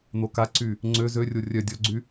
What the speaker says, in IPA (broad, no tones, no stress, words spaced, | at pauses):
n̪okaǀy | ŋ͡ǀø zørʲo rʲœ dʲɔɡ͡ǀy